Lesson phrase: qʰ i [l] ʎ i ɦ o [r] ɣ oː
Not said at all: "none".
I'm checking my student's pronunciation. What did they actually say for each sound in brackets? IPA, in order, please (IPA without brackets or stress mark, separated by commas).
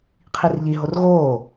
r, r